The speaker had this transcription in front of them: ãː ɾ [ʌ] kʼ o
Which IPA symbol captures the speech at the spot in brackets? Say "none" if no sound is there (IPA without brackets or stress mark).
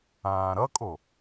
ʌ